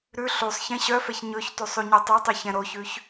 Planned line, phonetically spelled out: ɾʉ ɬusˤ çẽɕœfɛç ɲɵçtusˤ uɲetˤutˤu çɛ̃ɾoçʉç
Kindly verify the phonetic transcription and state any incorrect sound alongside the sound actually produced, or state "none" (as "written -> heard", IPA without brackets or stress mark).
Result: none